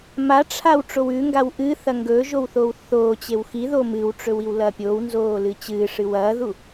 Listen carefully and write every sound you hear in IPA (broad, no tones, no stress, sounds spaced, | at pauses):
m a ʈ͡ʂʰ a w ʈ͡ʂ o w ʉ ŋ ɡ a w ʔ ɨ θ ɐ ŋ ɡ ɵ ʒ o w θ oː w θ oː t͡ɕ e w x i ð o m ɨ w ʈ͡ʂ ɵ w i w l ɐː pʲ oː w n z oː l ɨ t͡ɕ ɨː ʂ ɨ w ɐː ð u